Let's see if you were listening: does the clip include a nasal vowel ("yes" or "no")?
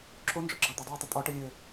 no